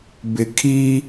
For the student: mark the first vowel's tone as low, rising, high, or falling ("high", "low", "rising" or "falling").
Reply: low